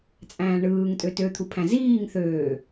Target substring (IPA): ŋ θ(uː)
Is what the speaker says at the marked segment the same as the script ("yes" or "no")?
no